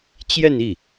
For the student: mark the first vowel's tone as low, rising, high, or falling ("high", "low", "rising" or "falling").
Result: falling